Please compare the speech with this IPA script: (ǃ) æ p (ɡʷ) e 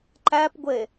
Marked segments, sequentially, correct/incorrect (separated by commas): correct, correct